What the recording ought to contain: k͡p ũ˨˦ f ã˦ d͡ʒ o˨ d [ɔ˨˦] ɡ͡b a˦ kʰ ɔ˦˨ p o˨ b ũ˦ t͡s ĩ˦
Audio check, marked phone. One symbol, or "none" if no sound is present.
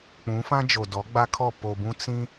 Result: ɔ˨˦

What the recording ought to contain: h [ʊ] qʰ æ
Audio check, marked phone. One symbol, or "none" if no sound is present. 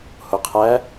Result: ʊ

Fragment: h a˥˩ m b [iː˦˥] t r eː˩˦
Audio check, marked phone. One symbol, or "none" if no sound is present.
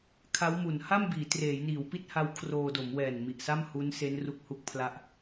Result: iː˩˦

